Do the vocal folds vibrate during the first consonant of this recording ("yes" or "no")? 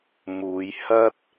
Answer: yes